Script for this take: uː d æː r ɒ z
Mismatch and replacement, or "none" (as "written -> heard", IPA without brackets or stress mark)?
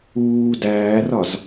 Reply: none